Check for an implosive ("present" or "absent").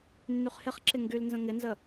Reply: absent